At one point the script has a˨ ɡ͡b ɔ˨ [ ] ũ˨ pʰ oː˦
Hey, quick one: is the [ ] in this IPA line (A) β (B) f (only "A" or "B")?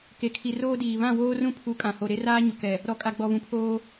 A